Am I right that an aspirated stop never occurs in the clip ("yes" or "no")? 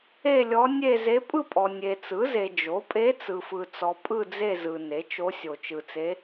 yes